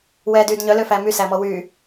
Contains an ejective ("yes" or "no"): no